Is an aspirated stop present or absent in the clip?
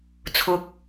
present